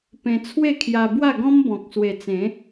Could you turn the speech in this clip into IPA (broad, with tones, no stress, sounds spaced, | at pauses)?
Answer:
p ẽ˧ t͡sʰ w e˥˧ kʰ j a˧ b w a˥˧ ɡ ɔ̃˦ m b ɔ̃˨ k̚ s w e˨˩ t͡s ẽ˨˦